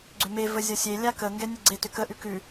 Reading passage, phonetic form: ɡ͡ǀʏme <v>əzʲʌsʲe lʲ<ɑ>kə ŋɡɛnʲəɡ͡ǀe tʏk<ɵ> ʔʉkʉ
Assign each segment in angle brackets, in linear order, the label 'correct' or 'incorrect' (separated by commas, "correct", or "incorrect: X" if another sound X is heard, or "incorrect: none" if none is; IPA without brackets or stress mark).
correct, incorrect: a, incorrect: ə